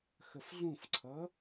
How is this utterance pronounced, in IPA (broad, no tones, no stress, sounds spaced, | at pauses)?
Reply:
x ə f ɮ ũ f ǀʰ ʌ